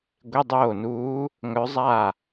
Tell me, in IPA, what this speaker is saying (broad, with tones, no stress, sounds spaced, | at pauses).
ɡʷ e˧˥˧ dˤ oː˥˩ n uː˧˥ | ŋ œ˧˥ zˤ a˥˩